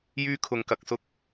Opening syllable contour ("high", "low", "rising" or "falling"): high